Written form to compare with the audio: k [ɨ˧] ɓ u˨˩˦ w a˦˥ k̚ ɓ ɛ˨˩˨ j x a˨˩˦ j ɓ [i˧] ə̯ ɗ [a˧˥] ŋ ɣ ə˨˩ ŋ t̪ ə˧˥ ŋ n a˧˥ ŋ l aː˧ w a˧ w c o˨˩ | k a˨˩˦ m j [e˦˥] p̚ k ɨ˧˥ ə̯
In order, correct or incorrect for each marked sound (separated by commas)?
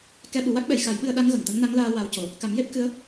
incorrect, incorrect, correct, correct